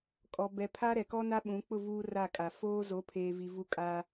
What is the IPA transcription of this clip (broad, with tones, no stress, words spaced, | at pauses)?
kʼɔ˨bɛ˨pʰa˦ ɾɛ˨kɔ˦na˦ ɓũ˨˦ k͡pʊ˦˨ vuː˦ ra˦˨kʼa˨ foː˦ zo˨˦pʰeː˨vi˨ vu˦kʼa˦